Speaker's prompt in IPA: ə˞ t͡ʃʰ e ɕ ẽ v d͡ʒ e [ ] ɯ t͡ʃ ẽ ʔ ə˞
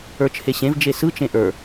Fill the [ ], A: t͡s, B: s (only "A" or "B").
B